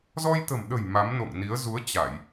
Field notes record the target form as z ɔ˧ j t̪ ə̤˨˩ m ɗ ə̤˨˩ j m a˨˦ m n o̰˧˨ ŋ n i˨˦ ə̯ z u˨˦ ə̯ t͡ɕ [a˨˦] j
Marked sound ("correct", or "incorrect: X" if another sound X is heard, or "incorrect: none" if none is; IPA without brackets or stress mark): incorrect: a˧˩˨